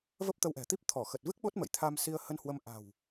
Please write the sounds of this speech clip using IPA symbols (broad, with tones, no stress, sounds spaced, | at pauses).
v ə˦˥ p̚ t̪ ə˧ w ʔ ɛ̤˨˩ t̪ i˦˥ p̚ t̪ʰ ɔ˧˩ x ə˨˩ t̚ v ɨ˦˥ k̚ ɓ o˦˥ t̚ m ə̰˧˨ j t̪ʰ a˧ m s i˧ ə̯ h ə˧ n h w ə˧ m ʔ a̤˨˩ w